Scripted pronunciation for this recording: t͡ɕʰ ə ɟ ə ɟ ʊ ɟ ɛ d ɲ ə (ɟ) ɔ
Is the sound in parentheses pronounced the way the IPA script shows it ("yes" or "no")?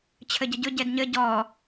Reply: yes